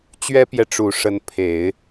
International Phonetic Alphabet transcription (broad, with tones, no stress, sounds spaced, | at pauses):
t͡ɕ ɥ ɛ˥ p j ɛ˨ ʈ͡ʂ u˨˩ ʂ ə˧˥ n pʰ e˨˩˦ ɪ̯